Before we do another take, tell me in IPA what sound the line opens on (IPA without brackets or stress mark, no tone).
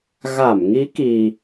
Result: ɣ